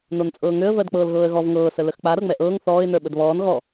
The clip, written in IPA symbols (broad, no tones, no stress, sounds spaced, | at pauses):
n o n t͡sʼ ɤː ŋ ø ə̯ v ɜ d k͡p ɤː l ɣ ɤː ə̯ ɣ ɔ v ŋ ɤː s ə l ə x k͡p a ɾ ɤ ŋ͡m ɛ ʔ ɤː ŋ θ ɔː ɪ̯ n ə˞ ɓ ə d β ɔː n ɣ ɔ